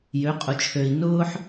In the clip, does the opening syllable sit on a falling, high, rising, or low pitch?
rising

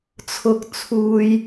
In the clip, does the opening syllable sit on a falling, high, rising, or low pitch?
high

